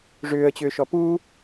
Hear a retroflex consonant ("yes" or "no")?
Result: yes